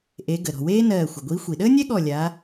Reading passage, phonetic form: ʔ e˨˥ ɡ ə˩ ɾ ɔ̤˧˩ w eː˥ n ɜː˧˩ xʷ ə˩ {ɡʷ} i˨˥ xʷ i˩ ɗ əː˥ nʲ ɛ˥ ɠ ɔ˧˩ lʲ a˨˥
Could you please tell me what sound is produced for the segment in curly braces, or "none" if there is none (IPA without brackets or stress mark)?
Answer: ɡʷ